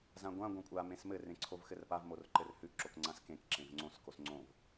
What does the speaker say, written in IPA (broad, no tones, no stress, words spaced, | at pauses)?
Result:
zãɡʷã ɡʷãkʷʼa mẽsmɘ rẽǀʰovxɘrpav morǃɘrhʉ ǁokŋ͡ǀãskẽk ǁẽvŋ͡ǀõs kosŋ͡ǀõv